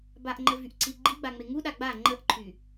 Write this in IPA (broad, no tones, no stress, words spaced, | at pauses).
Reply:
baʔŋ͡ǃə vyʔǀiɡ͡ǃiɡ͡ba ŋ͡meŋuɗa ɡ͡ba ŋ͡ǃəʔǃʰy